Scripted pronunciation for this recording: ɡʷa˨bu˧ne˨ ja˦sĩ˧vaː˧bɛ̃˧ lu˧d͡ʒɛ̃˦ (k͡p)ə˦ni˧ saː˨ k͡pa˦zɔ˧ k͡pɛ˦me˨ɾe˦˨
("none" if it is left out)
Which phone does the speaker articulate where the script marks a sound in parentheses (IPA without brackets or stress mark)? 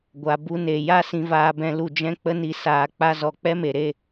k͡p